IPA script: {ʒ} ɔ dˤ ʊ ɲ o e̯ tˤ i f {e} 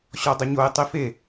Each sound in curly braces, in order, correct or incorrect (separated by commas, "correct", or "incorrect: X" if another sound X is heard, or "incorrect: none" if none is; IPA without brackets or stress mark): incorrect: ɕ, correct